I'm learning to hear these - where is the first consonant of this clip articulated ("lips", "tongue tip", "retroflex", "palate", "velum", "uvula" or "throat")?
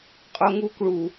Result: uvula